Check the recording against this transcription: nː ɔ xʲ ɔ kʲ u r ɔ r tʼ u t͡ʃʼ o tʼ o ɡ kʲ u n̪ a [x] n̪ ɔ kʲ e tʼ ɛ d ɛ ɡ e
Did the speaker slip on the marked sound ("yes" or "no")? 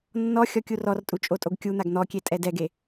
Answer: yes